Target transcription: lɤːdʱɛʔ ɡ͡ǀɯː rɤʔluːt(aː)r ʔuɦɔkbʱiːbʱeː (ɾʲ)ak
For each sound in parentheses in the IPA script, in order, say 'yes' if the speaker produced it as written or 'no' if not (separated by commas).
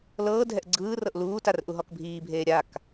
no, yes